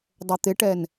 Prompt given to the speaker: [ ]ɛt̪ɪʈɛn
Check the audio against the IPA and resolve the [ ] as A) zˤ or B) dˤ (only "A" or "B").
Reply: B